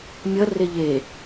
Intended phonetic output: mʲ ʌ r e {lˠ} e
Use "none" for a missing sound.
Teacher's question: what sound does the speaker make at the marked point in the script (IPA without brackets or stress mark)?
ʎ